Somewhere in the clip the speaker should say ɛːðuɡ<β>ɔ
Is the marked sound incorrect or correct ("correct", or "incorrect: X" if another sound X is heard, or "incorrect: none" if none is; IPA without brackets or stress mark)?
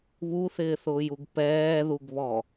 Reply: correct